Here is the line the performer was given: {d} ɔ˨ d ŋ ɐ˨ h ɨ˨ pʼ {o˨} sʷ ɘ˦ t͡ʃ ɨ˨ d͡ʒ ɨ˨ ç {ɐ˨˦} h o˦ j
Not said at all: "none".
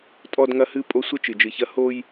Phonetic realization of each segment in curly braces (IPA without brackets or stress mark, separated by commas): tʼ, o˨, ɐ˦